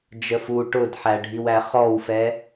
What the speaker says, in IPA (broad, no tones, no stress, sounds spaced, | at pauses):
d͡ʒ ə f u ʈ ʊ d ħ æ ɖʱ i w æ χ ɔ w f ɛ